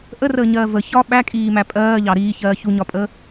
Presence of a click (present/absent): absent